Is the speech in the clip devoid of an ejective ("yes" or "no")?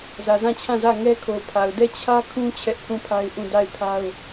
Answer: yes